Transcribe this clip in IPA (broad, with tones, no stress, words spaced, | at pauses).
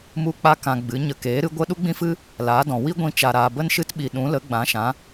mu˧k͡pa˧kã˨ ɡ͡bɨ˨˦ ɲə˨keː˨˦ɾɨ˨˦ ɡʷə˦ ɗu˦ɡ͡bĩ˦fɨ˦ | laː˨˦dɔ̃˨ wi˦ɡʷĩ˧ t͡ʃa˨ɾaː˨ bə˦nʃɨ˦tɓi˨ɗũ˨˦ lə˨˦ɡ͡bã˨˦ʃã˨˦